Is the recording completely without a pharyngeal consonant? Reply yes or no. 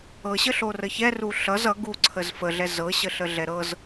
yes